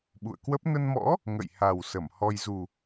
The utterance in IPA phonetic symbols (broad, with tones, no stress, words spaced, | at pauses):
ɓṵ˧˨ə̯kwə˦˥p̚ nə˧nmɔ̰˧˥ | ŋə̰˧˨jha˨˩w sə˧˩m hɔ˧j zu˨˩